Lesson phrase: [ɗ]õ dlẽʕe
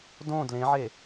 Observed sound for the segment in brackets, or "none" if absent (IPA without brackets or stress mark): d